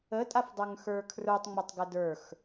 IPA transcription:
ə tʼ a f dˤ ə˞ ŋ x ə˞ kʰ r ə˞ tˤ ŋ͡m ʊ tˤ ɡ ə d ə˞ x

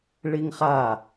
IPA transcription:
ɭ i ŋ χ a

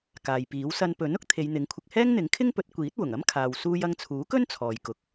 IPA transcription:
k aː˨ j p iː˨˥ w s ɐ˧ n p ɵ˨˥ n ʊ˨˥ k̚ t̪ʰ e˨˧ j n̪ ɪ˨˥ ŋ kʷʰ ɪ˧ k̚ h ɛː˥ ŋ n̪ ɪ˨˥ ŋ kʰ ɪ˥ ŋ p ɵ˨˥ t̚ kʷ iː˨˥ t̚ w ʊ˨˩ ŋ ɐ˥ m kʰ aː˨ w s uː˧ j ɐ˧ ŋ t͡sʰ uː˨˥ k ɵ˥ n t͡sʰ ɔː˨ j k ʊ˨ k̚

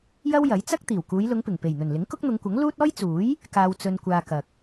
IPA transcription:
j ɐ˥ w j ɐ˨˥ j t͡s ɐ˥ k̚ t̪ iː˨˩ w k uː˨˧ j l ʊ˨˧ ŋ p ɪ˨˩ ŋ p e˨˩ j n̪ ɵ˨˩ n l ɪ˨˥ ŋ k ʊ˥ k̚ n̪ ʊ˨˧ ŋ kʷ ɐ˨˥ ŋ l uː˥ t̚ ɔː˥ j t͡s uː˨˥ j | k aː˧ w t͡s ɵ˧ n kʷ aː˧ k ɐ˨ k̚

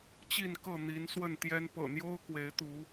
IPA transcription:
t͡ɕ i˥˨ n k ɤ˥˨ n̪ i˨˦ n s w ə˥˨ n t̪ j ɛ˦ n p ɤ̰˨˩ n̪ j o˦ ʊ̯ k w e˨˦ ɪ̯ t̪ u˨˦

